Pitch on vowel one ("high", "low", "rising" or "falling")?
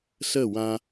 falling